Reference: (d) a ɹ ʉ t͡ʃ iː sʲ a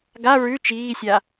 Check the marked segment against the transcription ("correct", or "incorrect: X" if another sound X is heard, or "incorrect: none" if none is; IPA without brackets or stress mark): incorrect: ɡ